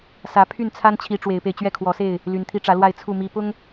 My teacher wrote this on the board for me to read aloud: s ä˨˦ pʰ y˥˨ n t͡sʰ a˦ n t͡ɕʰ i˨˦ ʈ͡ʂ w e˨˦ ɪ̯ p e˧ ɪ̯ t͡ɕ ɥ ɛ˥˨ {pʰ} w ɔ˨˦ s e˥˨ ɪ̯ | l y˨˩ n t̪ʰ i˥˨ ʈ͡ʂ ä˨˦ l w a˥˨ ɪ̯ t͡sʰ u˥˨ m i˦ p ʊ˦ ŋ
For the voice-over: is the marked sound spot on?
no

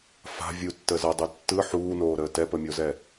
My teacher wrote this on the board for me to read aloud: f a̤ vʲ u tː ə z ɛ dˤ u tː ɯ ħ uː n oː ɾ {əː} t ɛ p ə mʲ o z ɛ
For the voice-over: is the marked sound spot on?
yes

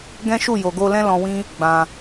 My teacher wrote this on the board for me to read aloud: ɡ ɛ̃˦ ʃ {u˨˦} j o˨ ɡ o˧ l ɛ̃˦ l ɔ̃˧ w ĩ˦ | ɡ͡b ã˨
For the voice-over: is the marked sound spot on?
no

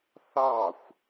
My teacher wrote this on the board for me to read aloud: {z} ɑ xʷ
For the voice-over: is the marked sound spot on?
no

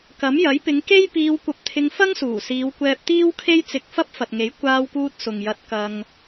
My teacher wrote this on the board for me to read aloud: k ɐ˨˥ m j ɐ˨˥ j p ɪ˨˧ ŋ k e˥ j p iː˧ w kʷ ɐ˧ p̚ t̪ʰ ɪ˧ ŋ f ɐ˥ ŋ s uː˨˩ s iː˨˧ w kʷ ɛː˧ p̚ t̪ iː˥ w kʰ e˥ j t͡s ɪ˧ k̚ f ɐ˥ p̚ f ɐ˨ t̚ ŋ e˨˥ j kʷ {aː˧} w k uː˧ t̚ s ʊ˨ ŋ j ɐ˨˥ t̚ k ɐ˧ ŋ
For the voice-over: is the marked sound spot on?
yes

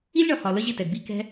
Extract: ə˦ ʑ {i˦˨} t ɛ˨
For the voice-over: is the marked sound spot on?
no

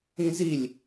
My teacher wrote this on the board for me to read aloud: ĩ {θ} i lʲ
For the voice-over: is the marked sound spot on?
no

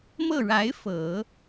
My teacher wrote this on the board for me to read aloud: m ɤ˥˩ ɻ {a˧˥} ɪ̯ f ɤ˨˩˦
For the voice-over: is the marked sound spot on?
yes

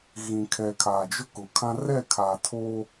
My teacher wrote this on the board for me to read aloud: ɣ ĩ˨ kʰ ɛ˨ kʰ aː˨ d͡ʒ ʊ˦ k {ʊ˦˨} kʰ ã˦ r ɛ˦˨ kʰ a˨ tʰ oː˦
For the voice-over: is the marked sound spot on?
no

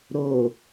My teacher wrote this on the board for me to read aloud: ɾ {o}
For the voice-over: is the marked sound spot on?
yes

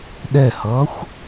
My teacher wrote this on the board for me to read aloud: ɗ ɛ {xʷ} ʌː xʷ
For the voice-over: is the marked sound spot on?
no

